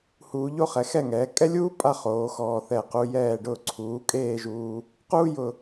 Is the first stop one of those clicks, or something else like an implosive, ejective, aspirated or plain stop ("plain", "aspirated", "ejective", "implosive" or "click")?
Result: ejective